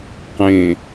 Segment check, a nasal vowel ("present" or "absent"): present